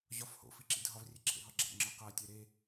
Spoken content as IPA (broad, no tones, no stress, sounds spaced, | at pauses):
ʑ ɒ f h o̰ f i ǁ ḭ dʱ ɒ v rʲ e ǁʰ ḛ ɦ ɒ ɡ͡ǁ æ̰ ŋ͡ǁ ɒ q æ tʲ æ ɾ e